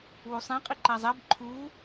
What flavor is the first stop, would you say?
ejective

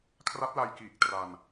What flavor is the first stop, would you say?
aspirated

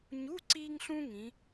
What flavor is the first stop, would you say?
click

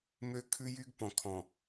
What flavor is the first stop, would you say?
aspirated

